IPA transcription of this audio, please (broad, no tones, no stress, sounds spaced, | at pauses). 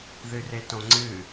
ð ɨ r e t õ ŋ͡ǀ ɨ